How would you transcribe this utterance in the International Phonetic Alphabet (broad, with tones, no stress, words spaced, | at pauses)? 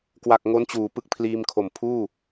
kwa˨˩k̚ ŋo˦˥nt͡ɕuː˩˦ pɯ˦˥k̚pʰliː˧mkʰo˨˩m pʰuː˥˩